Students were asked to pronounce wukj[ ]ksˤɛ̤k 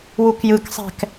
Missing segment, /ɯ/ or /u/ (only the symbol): ɯ